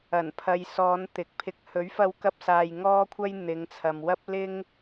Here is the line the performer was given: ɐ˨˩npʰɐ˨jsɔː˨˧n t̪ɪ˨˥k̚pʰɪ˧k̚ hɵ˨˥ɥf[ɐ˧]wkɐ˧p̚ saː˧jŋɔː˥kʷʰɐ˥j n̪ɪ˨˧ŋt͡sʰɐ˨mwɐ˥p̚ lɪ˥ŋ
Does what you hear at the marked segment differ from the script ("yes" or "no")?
no